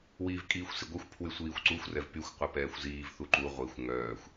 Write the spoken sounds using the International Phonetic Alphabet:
w iː v kʼ iː xʷ s i ɡʷ ʌ xʷ pʰ w y sʷ iː xʷ ǀ u xʷ r ɛ v p y xʷ qʷ œ p ɛː xʷ z iː v θ u ǃ u ʁʷ i xʷ ŋ œː xʷ

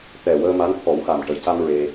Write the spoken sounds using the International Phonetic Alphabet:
t̪ ɛ˨˩ w əː˧ m a˧˥ n t̪ʰ ɔ˨˩˦ w x a˨˩ m ʈ ə˨˩ j c a˧ m ɹ e˧

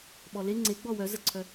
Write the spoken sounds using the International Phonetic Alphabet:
ɓ ɔ l e ŋ͡ǀ e ɡ͡b ɔ w œ z ə ǀʰ œ

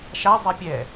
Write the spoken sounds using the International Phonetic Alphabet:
ʃ a zˤ ɛ pʲ ɛ

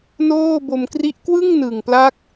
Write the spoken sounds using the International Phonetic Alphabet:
n oː˥˩ b o˧ m k r i˦˥ ʔ k w ɯ˥˩ ŋ n ɯ˨˩ ŋ p l a˦˥ k̚

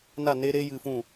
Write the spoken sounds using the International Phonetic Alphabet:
n a˦˨ n e˦ ɾ e˦ j ɨ˧ f ũ˦˨

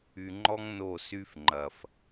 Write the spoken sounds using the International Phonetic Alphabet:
y˨ ŋ͡ǃ ɔ˦ ŋ n o˦˨ s y˦ f ŋ͡ǃ ɐ˨ f

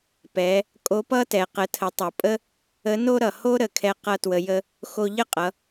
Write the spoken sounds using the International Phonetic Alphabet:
p ɛ˩˧ | kʼ o˧˥ p ʌ˥ t ɛ˩˧ q ə˩˧ tʰ ə˩˧ tˤ o˩ pʼ ə˥ | ə˧˥ n o˥ ɾ ʌ˩ h o˥ ɾ ə˩ kʰ ɛ˧ q ʌ˧ t w ə˩˧ j ə˧ | x o˧ ʎ ə˥ qʼ ʌ˩˧

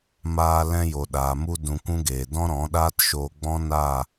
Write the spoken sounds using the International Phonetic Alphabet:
m aː˧ l ɛ̃˧ j o˨ ɗ aː˨ m u˧ d ũ˧ kʷ ũ˦ ɡ eː˨ d ɔ̃˦ ɾ ɔ̃˨˦ ɗ aː˦ t ʃ oː˧ ɡ͡b ɔ̃˦ n a˦˨

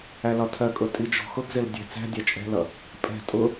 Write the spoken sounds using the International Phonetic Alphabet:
æ l ɒ tʰ ɜ kʼ ʊ tʼ i d͡ʒ ɔ̤ x ʊ ɡ z ɪ l dʲ ɛ̤ t͡s æ̤ dʲ æ t͡ʃʼ ɛ̤ l ʌ | pʼ ɛ̤ tʼ ʊ

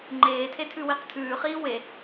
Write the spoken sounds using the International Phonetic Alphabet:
ŋ͡ǃ eː tʰ e tʰ ʉ w i q tʰ ʉː χ iː w e

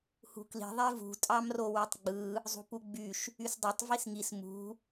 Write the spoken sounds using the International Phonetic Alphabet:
h ṳ k l i̤ ðˤ e v ṳ tʼ ɑ m r o w y tˤ ɡ͡b ɯ | zˤ ṳ p u ɡ͡b y ʃ | y s dˤ ø tˤ v i s ŋ i s m ṳ

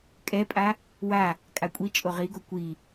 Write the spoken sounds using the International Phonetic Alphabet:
kʼ ɛ pʼ a | w a | kʼ a kʷʼ i t͡ʃʼ o ʁ i ɡ o kʷ i

